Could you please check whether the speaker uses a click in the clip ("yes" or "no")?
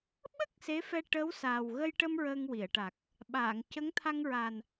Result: no